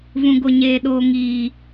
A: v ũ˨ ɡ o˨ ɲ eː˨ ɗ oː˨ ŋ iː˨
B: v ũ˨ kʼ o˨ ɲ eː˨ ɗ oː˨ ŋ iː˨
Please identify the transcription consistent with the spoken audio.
A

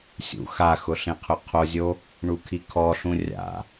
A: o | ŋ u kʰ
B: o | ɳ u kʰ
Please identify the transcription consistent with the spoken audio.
B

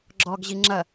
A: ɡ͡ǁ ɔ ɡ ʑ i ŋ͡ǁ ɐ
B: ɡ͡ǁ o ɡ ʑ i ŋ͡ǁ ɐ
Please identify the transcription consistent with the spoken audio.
A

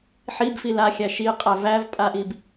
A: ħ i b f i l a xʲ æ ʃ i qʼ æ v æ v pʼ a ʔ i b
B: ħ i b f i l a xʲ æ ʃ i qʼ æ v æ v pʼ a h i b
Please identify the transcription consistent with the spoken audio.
A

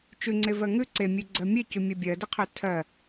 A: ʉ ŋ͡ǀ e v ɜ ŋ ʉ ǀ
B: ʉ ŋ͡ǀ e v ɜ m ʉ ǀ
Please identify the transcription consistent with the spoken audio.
A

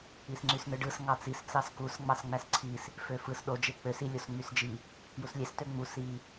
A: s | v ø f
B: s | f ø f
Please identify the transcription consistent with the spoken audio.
B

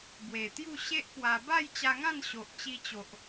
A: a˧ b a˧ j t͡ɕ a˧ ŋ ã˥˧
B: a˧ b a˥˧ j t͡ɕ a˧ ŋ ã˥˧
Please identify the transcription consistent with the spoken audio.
B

